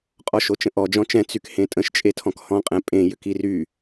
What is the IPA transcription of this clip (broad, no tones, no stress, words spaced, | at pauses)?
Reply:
qʼɔʃot͡ʃə̃ʔɔ d͡ʒɔ̃t͡ʃɛ̃ t͡sykhẽtʼə̃ʃ t͡ʃʼetʰɔ̃khɔ̃ qʼɛ̃pʼẽ jʏkiry